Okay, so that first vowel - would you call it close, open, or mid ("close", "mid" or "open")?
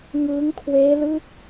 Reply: close